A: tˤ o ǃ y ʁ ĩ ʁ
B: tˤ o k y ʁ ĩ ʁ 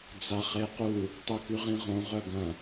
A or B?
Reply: B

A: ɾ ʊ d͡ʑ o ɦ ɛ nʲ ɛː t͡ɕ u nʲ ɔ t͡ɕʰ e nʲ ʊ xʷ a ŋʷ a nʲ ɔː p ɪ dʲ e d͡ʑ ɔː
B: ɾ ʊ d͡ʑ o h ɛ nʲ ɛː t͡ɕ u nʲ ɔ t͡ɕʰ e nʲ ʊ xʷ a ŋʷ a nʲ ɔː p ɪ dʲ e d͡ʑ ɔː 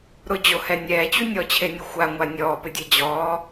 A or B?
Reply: B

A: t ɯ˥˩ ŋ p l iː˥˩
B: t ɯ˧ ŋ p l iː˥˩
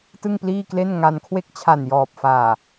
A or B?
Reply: A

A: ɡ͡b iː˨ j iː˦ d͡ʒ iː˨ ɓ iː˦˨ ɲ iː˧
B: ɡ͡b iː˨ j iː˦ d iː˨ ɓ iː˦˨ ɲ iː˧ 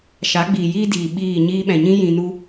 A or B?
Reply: B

